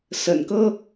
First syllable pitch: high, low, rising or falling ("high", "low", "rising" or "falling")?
low